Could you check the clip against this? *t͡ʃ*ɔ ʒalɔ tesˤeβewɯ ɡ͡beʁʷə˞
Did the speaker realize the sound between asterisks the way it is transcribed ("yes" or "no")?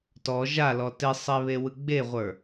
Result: no